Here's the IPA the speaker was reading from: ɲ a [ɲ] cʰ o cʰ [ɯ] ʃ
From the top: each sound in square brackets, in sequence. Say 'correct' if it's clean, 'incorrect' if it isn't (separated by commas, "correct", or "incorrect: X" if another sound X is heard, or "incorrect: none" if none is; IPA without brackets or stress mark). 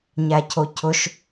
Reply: incorrect: none, incorrect: ʊ